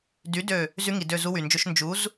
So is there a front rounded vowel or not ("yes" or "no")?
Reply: yes